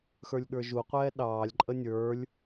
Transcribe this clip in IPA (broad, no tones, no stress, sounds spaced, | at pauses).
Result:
x ə˞ lʲ ɠ ə˞ ʒ u qʷ ɛː ɗ ɑː lʲ ǃʼ ə nʲ ə˞ lʲ